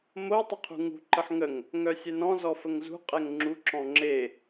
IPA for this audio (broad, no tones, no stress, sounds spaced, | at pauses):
m o tˤ ə qʰ ṳ ŋ ṳ ǃ ə ħ ŋ ə ŋ | ŋ œ sʲ ɛ n ɔ̃ z ɔ f ə ŋ z ṳ qʼ ɛ ŋ ŋ͡ǁ u ǁ ɔ̃ ŋ͡ǁ e